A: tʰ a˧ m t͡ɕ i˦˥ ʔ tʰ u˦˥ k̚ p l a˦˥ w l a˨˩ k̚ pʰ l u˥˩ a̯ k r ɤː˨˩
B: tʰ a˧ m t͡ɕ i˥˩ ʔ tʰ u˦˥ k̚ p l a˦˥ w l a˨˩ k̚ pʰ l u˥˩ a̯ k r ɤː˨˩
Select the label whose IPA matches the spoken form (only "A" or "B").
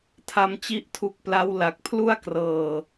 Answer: A